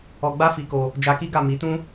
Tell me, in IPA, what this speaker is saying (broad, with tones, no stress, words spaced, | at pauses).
ɔ˧ɡ͡ba˦fi˧ko˧ | d͡ʒa˧ki˦ɡa˦˨ mi˨˦tũ˦